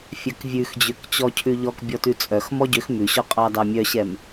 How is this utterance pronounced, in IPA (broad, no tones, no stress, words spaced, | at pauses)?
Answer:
fʲœkvʲʉxd͡ʑøkt͡ɕɔ cʰʉʎɔk bʲɔtʉt͡sʼœx mɔɟøx mʉɕɔ qʼɑdɑmʲœɕɛm